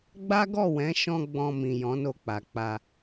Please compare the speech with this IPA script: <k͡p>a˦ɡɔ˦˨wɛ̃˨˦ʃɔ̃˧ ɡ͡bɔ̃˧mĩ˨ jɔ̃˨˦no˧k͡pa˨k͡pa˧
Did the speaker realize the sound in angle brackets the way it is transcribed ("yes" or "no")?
no